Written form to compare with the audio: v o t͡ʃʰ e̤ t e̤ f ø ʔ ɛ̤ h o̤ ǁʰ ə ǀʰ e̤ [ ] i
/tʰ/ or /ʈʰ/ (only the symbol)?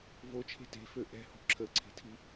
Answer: tʰ